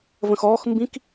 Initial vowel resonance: nasal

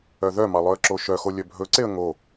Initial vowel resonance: oral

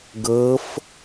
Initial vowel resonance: oral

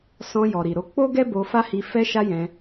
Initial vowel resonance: nasal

